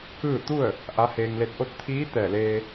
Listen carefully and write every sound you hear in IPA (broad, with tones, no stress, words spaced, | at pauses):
kɯː˥˨ t̪u˥˨ə̯ | ʔa˧˥heː˧ŋle˧˥t̚ ʔo˧˥t̚t̪ʰiː˧˥ t̪ɛː˧˩leː˧